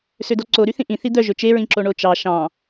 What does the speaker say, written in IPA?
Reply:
s ø d ɔ ǀ o ɾ y θ ĩ ʔ ĩ θ i d̪ œ ʒ ɵ t͡ʃ e ɹ ĩ ǁ o ɳ o t͡ʃ ɑ ʃ ɑ̃

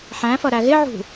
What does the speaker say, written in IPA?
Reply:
ħ æ̃ f ʌ ɾ æ ɣ ɪ ʕ ṳ

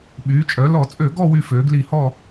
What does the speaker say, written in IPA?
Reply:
ɓ yː˩˧ t͡ʃʼ œ˩˧ l ɔ˧˩˧ t͡sʼ ø˧˩˧ ɡ ɔ˦˨ w y˦˨ f øː˩˧ ɡ l i˧˩˧ h ɔ˦˨

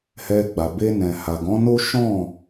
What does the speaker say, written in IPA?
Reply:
h ɛ˧ ɡ͡b a˨ b e˧ n ɛ̃˨ h a˨ ɡ ɔ̃˨˦ n o˦ ʃ ɔ̃˦˨

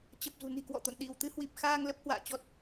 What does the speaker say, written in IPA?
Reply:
t͡ɕ ə˨˩ p̚ z ṳ˨˩ n i̤˨˩ k w ɔ̰˧˨ t̪ o̰˧˨ n ɗ i˧˩ w t̪ ɨ˧ h w i˨˩ p̚ x aː˧ ŋ l ə˦˥ p̚ h w a̰ː˧˨ t͡ɕ ɔ˦˥ t̚

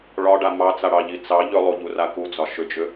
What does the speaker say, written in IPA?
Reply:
ɭ ɒ ɖ a m ɑ t͡s a ɽ ɑ ʎ i t͡s ɑ ʎ ʏ lˠ u ʎ u r a k u d͡z ɒ ʃ ʏ d͡ʒ ʏ

